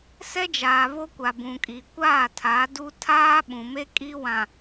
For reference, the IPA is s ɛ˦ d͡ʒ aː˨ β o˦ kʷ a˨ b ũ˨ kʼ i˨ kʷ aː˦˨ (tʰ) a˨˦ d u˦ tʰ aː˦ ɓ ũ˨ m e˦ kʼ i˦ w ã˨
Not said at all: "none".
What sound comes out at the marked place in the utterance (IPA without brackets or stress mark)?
tʰ